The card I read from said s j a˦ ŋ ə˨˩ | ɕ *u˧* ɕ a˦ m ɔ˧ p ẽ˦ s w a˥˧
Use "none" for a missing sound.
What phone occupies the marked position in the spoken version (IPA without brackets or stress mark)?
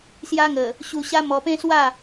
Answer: u˧